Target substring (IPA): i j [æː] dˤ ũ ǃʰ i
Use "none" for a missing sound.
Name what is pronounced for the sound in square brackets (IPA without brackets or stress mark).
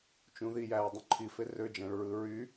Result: æː